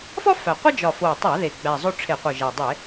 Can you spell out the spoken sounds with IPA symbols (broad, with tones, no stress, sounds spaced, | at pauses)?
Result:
f ɒ˥ f æ˨˩ qʷ ə˥ d͡ʒ ɒ˨˩ f o˨˩ tˤ a˧˩˧ ð e˨˩ ɡ͡b æ˨˩ zˤ o˥ ʈ͡ʂʰ e˧˩˧ qʷ ɯ˨˩ ʒ æ˨˩ dˤ e˧˩˧